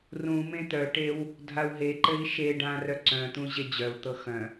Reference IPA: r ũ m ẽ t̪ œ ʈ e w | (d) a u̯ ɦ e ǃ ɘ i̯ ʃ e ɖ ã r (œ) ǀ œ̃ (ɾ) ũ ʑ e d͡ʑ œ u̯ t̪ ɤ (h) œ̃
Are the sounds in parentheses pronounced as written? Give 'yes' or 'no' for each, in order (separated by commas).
no, yes, no, no